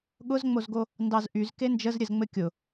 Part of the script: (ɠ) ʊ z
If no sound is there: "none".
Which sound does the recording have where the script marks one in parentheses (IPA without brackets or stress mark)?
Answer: ɠ